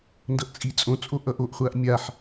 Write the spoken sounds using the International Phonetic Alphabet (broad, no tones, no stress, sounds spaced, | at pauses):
n d ʌ ʔ t͡sʼ i t͡sʼ õ t͡sʼ o ʔ ʌ ʔ o ʔ χʷ a ʔ mʲ a ħ